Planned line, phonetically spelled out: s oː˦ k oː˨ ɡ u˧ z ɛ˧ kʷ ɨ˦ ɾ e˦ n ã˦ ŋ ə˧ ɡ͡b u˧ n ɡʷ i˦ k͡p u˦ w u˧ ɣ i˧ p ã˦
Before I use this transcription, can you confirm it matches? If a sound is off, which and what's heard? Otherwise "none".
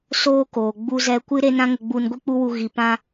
ɡ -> ɡ͡b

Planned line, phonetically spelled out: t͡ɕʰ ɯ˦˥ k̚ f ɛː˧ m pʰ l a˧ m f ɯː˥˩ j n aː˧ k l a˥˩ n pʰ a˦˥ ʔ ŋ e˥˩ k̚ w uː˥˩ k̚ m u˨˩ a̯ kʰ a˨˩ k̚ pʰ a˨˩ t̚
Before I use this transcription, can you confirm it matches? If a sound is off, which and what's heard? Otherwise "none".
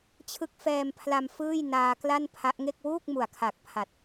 none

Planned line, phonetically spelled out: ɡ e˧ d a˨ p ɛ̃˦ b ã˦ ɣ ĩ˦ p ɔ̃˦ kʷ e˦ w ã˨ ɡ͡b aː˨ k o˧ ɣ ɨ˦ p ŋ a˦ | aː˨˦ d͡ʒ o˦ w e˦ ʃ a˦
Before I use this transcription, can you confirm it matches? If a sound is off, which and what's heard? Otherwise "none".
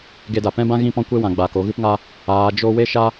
none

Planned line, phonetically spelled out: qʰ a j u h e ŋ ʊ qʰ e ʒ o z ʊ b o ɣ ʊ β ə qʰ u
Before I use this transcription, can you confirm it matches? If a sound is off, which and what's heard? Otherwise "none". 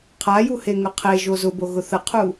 β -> θ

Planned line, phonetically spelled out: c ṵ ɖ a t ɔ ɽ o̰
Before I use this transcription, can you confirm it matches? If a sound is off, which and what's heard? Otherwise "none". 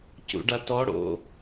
none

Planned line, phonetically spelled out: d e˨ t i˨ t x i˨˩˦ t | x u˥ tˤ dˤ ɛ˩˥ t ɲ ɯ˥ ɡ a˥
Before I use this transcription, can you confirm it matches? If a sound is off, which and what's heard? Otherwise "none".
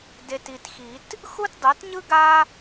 tˤ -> t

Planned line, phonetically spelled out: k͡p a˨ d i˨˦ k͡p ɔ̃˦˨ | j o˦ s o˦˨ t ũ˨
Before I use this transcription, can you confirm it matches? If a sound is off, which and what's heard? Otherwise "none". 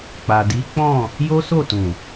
none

